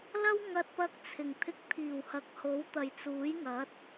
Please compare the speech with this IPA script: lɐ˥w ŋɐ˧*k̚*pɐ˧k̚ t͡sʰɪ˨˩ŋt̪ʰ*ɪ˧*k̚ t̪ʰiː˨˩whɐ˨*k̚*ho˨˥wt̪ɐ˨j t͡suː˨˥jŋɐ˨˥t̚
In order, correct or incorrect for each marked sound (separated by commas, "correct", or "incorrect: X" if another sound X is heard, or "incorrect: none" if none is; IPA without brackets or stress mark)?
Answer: incorrect: t̚, correct, correct